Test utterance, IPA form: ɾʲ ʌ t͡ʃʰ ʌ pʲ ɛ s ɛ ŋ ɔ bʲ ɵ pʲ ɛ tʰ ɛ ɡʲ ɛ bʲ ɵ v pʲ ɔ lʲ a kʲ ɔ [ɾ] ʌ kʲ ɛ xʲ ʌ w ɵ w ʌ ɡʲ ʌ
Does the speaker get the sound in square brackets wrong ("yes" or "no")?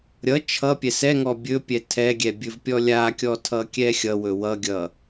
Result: yes